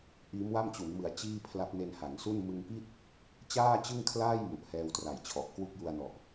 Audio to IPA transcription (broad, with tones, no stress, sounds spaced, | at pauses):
ʔ iː˦˥ m w a˥˩ m t͡ɕ u˩˦ n m ɯ˨˩ a̯ t͡ɕ iː˥˩ pʰ l a˦˥ p̚ n e˧ n h a˩˦ ŋ s u˥˩ n m ɯ˧ ŋ p i˥˩ t̚ | t͡ɕ aː˥˩ t͡ɕ ɯ˥˩ ŋ kʰ l aː˥˩ j m u˨˩ ʔ h ɛː˧ w t r a˨˩ j t͡ɕʰ ɔ˨˩ ʔ k w u˥˩ k̚ j u˧ a̯ n ɔ˨˩ ʔ